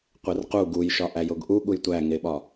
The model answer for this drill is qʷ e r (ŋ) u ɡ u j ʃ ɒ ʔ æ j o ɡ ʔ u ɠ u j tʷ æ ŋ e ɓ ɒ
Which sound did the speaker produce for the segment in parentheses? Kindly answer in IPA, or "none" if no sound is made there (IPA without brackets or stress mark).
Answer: q